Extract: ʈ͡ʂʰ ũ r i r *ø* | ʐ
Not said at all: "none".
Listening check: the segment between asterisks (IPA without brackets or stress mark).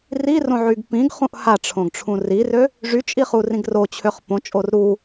ø